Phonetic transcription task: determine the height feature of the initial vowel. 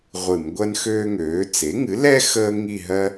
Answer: high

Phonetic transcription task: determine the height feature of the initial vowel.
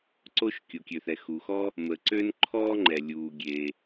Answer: mid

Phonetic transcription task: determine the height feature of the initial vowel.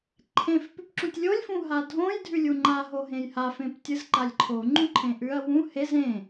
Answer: mid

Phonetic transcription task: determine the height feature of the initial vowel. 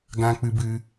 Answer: low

